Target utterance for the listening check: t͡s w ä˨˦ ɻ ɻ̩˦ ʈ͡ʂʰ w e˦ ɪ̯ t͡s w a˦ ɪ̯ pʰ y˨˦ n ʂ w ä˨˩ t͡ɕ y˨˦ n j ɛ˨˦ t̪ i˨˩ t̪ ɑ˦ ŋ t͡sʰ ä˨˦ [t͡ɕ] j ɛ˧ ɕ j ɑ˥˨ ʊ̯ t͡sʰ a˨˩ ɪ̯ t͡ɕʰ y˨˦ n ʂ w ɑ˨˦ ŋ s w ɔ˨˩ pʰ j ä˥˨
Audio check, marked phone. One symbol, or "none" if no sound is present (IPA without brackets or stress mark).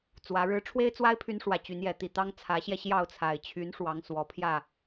ɕ